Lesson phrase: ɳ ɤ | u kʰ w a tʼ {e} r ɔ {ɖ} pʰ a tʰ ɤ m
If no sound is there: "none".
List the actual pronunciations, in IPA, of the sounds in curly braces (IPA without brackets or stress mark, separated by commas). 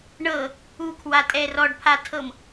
ɛ, ɖ